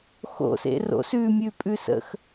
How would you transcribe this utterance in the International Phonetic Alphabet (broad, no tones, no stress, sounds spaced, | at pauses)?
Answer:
x o̰ s ḛ r o̰ s ʉ mʲ ʉ pʼ ʉ s ə̰ x